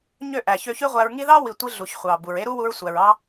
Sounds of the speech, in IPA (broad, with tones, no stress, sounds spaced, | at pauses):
ɲ ø˦˨ ʔ æ˨ ç ø˧ ç y˦ ʁʷ æ˧ ɹ ŋ i˦ ð ɑ˦ w i˨ tʷ i˧ ɮ u˨ ç χʷ ɑ˨ b u˨ ɹ e˦ ɾ u˦ w u˧ ɹ sʷ æ˨ ɹ ɑ˦